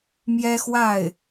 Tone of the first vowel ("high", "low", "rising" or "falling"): high